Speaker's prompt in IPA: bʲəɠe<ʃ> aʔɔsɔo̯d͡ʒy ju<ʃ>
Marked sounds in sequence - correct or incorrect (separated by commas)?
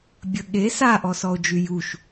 incorrect, correct